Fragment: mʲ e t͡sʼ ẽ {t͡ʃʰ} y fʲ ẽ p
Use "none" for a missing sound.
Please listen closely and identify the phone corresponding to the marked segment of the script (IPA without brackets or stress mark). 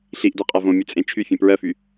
t͡ʃʰ